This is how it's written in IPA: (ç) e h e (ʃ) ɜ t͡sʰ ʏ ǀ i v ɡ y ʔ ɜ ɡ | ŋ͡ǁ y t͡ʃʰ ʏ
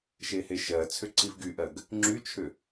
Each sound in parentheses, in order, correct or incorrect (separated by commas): incorrect, correct